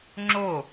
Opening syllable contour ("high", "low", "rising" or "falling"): falling